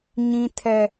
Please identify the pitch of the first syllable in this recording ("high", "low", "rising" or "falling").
high